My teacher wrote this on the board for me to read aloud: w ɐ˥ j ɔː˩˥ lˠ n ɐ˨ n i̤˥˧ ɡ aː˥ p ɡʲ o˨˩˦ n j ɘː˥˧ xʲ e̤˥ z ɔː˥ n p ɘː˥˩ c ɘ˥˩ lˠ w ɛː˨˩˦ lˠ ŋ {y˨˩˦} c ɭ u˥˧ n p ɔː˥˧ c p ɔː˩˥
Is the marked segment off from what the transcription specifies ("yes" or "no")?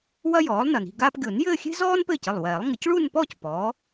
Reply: yes